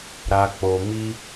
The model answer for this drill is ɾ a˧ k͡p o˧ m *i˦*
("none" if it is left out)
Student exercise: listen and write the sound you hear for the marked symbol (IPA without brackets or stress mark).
i˦